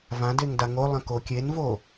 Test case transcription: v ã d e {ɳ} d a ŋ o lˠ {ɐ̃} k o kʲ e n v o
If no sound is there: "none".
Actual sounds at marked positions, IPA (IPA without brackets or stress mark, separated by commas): ŋ, ɐ̃